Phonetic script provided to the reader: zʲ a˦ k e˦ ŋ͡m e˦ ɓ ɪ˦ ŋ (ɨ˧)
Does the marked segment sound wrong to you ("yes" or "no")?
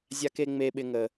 yes